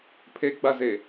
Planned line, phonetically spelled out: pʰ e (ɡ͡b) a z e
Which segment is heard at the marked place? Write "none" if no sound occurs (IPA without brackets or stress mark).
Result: ɡ͡b